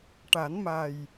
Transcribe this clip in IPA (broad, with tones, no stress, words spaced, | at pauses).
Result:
ʈa˨˩˦nma˨˩j